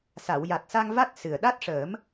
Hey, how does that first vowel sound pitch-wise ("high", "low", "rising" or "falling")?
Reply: low